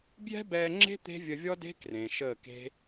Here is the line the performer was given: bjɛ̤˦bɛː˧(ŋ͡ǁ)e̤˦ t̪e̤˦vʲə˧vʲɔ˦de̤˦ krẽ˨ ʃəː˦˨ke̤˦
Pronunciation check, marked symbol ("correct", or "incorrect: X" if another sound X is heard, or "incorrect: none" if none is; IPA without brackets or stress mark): correct